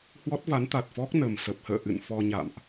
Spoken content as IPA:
h w ɔ˦˥ t̚ v a˨˦ n t̪ a˨˩ t̚ f ɔ˦˥ k̚ n ə˨˩ m s ə˨˩ p̚ h ə̰ː˧˨ ʔ ɨ̰˧˨ n f ɔ˧ ɲ a̰˧˨ m ʔ

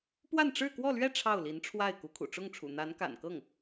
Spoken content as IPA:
p w a˥˧ n ʈ͡ʂ ɻ̩˥˧ k w ɔ˥˧ l ɥ ɛ˥˧ ʈ͡ʂʰ ɑ˥˩ ʊ̯ l i˧˥ n ʈ͡ʂʰ w a˥˩ ɪ̯ k u˧˥ kʰ ṵ˨˩ ʈ͡ʂ ʊ˥˩ ŋ ʈ͡ʂʰ ṵ˨˩ n̪ a˧˥ n k a̰˨˩ n k ɤ˥˩ ŋ

